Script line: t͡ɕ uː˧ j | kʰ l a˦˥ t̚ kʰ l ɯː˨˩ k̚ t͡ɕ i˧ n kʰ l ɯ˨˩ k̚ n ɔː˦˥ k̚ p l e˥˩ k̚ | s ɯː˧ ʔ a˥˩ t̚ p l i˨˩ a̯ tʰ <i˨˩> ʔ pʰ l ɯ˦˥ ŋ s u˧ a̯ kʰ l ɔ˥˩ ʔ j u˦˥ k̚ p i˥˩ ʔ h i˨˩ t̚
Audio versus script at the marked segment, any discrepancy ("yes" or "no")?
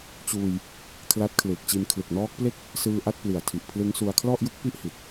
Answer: no